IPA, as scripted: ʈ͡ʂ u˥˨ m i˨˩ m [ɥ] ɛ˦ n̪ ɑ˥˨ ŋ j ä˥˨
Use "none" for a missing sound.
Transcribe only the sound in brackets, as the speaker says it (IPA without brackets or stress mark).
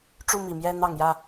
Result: j